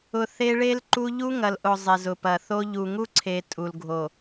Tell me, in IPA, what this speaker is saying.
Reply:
ʊ˨ θ e˦ ɭ e˦ l ǃ u˦ ʎ u˦ ŋ ɐ˨ l ʔ ʊ˨ zˤ e˨ z ʊ˨ p ɐ˨ θ o˦ ʎ u˨ ŋ u˦ ǀʰ e˨ tʼ u˨ l ɡʱ o˨

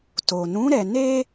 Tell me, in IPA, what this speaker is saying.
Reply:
t o˨ n ũ˨˦ ɾ ɛ˧ n e˦

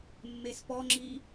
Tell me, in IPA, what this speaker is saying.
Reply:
mː e s p ɔ ŋ͡ǁ i

